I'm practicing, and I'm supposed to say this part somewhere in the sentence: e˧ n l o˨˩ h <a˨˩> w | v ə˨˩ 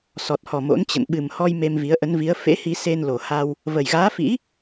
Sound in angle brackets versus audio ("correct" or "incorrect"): incorrect